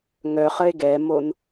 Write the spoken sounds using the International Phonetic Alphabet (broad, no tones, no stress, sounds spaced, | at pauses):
ŋ œ χ ə e̯ ɡ ɛ m o n